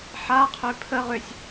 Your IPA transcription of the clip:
ħ a qʰ ø pʰ ə ʁ ø sʲ

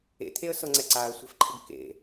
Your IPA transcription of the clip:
ḛ t̪ʰ e ə̯ s ɤ ŋ͡ǀ ɛ ǀ a ə̯ sʷ ɛ̤ f ǃʰ ɪ ɡ k ḛ

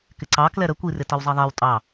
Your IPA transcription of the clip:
k ɪ ǀ ɑ k l ɛ ɾ ə kʷ i r ɪ t ʌ w zˤ i ðˤ ɛ w tʼ ɑ

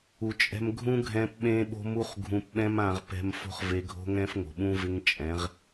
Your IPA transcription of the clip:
u˨ t͡ʃʼ ɛ̤˧ m ɡʱ ũ˦ ɡʱ ɛ̃˧ p ɓ ẽ˦ ɓ o̤˦ m u˦ χ ɡʱ ũ˧ p ɓ ɛ̃˦ m ã˧ ʁ p ɛ̤˧ m f o̤˦ χ v e˧ ɡʱ o̤˦ ŋ ɛ̃˦ f ŋ o̤˨ ɓ ũ˦ v ɪ˦ ŋ t͡ʃʼ ɛ̃˨˦ ʁ

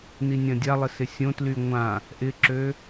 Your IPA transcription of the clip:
n i nʲ ɐ̃ dʲ a lˠ ɪ s ɪ sʲ õ t l y ŋʷ ã | ʔ ɪ ǁ ø

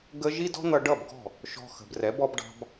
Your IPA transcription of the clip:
ɡ ə˦ ʒ i˦ d ɔ̤˦ n̪ ʌ˧ ɖ ʌ˦˨ b ɡ ɔ̤˦˨ | ʃ ɔ̤˧ x ə̤˨ b r ɛ˨˦ b ɔ˦ b ɖ ɑ̤˦ b

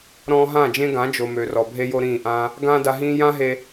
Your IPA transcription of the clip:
ɾ ɔ̃ː˧ ɦ ã˦˨ d͡ʒ ẽ˦ ɡ ã˨˦ d͡ʒ o˨ m ø˨ r ɔ˨ bʱ e˦ j o˦ ɾ ĩː˦˨ ʔ ãː˦ | ɡ ãː˦ d a˧ ɦ ĩː˦ j ã˦ ɦ e˧

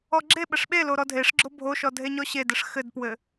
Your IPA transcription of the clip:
ɔ ɡ͡ǁ e ɓ ɘ ʂ ɓ e l o ɾ ɔ dʱ e ʂ ɡ͡ǁ o bʱ o ʃ ɔ dʱ e ɲ ɔ ɕ e d ɘ ʂ x ɘ d p w ɘ

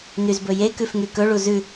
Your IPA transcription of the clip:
n y z b ɵ j e k ʉ f ŋ y k ɵ ɭ u z ʉ

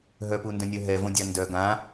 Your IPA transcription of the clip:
ɦ œ p u n d œ̃ nʲ œ ɦ ɛ v õ dʲ a n d œ ɡ ã

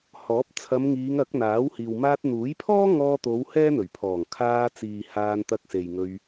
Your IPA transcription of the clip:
h ɔː˨˥ p̚ t͡sʰ ɐ˨˧ m ŋ iː˨˧ ŋ ɐ˨˥ k̚ n̪ aː˨˥ w h iː˨ w m aː˧ t̚ n̪ uː˨˥ j pʰ ɔː˥ ŋ ɔː˧ t̪ o˨˧ w h ɛː˥ n̪ ɵ˨˩ ɥ pʰ ɔː˨˩ ŋ kʰ aː˧ t͡s iː˨ h aː˧ n t̪ ɐ˧ k̚ s e˨ j ŋ ɵ˧ ɥ

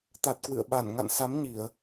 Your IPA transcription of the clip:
t̪ a˨˩ t̚ k w ɨ̰˧˨ ə̯ ɓ a˧˩ n ŋ a̰˧˨ n s a˨˦ m ɲ i˧˩˨ ə̯

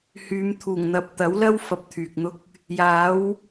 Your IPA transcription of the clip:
h yː˨˧ m t̪ʰ uː˨˩ ŋ n̪ ɐ˨ p̚ t̪ ɐ˨˥ w l ɐ˥ w f ɐ˧ p̚ t̪ʰ yː˨ k̚ n̪ ʊ˥ k̚ | j aː˨˥ w

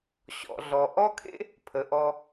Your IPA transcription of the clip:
ɕ ɔ̰˩ ɮ ɔ˩ ʔ ɔ˦ kʰ ḛ˥ | pʰ ə˩ ʔ ɔ˨

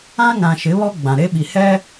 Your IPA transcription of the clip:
ã˦ ŋ ã˨ ʃ ɪ˨˦ β ɔ˦ ɡ͡b ã˨ ɾ e˦ ɓ i˨ h ɛ˦

